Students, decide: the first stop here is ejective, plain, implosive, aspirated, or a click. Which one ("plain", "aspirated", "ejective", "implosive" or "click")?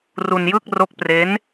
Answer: plain